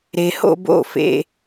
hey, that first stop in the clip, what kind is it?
plain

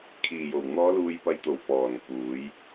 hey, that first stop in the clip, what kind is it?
aspirated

